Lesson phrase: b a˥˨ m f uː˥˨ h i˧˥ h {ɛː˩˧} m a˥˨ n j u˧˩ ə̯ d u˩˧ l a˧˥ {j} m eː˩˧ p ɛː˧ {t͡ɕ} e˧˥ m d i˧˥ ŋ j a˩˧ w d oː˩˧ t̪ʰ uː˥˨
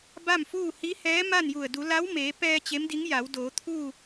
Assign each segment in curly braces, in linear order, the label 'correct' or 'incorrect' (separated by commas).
incorrect, incorrect, correct